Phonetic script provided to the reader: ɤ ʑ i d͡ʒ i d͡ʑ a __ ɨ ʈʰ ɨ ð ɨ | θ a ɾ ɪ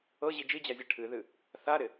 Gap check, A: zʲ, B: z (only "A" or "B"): A